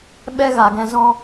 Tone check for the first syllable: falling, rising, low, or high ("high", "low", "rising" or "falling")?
high